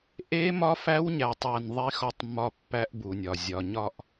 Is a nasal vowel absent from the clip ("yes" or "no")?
yes